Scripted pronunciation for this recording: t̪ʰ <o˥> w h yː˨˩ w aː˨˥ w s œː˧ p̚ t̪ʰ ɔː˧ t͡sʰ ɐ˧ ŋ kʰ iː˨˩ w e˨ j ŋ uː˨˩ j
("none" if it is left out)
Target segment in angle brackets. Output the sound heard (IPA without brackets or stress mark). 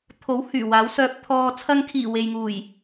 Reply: o˨˥